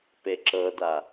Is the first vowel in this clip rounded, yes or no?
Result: no